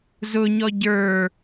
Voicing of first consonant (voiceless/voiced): voiced